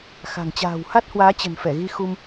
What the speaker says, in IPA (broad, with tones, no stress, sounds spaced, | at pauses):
x a̤˨˩ ŋ t͡ɕ a̤ː˨˩ w h a˦˥ t̚ h w aː˨˦ t͡ɕ ə̤˨˩ n f ɛ˧˩ ɣ i˧ x u˧ m